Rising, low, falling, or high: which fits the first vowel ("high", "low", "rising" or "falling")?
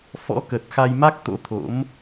rising